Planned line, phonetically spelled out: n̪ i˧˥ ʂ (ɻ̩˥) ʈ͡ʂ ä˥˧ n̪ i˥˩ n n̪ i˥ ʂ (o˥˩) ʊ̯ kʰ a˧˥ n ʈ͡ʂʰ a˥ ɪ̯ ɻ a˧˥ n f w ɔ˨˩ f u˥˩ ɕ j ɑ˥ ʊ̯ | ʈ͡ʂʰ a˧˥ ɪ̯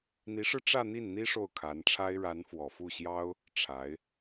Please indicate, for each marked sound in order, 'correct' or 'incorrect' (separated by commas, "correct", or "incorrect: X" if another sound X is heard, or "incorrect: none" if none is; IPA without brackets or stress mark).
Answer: incorrect: ɻ̩˧, correct